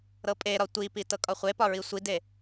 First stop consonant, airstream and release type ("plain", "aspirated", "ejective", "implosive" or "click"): ejective